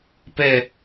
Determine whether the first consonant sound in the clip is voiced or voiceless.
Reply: voiceless